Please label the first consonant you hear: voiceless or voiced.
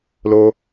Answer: voiced